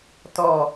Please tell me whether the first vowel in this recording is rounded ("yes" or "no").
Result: yes